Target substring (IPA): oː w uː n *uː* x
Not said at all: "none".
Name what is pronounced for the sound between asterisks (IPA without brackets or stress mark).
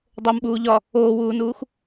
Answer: uː